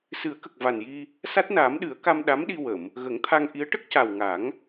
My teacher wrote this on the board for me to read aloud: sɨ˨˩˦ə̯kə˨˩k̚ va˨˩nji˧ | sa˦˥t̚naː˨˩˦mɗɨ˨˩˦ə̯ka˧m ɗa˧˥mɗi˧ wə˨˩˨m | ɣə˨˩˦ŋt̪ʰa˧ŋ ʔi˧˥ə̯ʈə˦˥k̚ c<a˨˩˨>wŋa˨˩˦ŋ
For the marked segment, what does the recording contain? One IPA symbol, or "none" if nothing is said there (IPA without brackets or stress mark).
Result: a˨˩